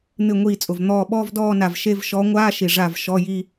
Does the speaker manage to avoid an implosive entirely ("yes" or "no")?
no